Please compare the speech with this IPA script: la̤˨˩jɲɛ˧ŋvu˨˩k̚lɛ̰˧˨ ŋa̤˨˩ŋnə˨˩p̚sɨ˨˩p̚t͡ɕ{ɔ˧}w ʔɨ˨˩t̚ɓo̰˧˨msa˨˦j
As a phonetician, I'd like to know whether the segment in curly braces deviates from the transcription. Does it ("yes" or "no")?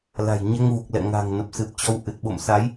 no